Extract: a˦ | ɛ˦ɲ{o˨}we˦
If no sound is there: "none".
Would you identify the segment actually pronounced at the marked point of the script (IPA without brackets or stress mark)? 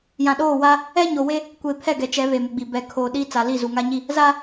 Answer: o˨